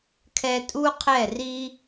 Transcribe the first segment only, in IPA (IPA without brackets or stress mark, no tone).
kʰ